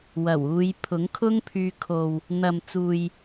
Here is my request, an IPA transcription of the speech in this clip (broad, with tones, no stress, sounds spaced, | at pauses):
w ɐ˨˩ w uː˨˧ j pʰ ʊ˨˥ ŋ kʰ ʊ˥ ŋ pʰ yː˧ kʰ o˨ w | n̪ ɐ˨ m t͡s uː˨ j